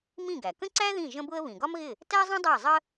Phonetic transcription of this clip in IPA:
m ĩ˥˩ ɡ æ˩ k ə̃˥ ǀ æ˥ ð ĩ˥˩ ʒ ə̃˥ b ʊ˥ ə̯ β ĩ˩ ɡ ɒ˥ m ɣ ɪ˥˩ | t æ˥ zˤ ĩ˥ dˤ æ˥˩ zˤ ə˥

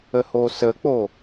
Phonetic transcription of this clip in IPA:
ə h o s ə k͡p o

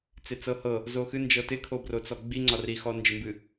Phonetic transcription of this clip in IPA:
t͡s ɪ t͡s ɤ h ɤ | z o x ɨ n d͡ʒ ɤ t ɪ kʰ o b r o t͡s ɔ ɡ͡b i ŋ͡ǀ ɒ r i x ɔ n d͡ʒ ɪ m b ɨ

